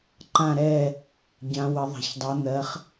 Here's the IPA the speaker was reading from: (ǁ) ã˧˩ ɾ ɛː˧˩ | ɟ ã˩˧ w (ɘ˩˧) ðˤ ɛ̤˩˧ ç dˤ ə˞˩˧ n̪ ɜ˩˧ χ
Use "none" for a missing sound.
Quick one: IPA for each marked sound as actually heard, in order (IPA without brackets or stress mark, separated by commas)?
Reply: ǃ, ɘ˩˧